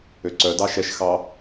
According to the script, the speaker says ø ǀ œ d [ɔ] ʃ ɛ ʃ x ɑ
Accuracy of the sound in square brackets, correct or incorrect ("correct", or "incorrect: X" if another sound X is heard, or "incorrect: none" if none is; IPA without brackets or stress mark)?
incorrect: ɑ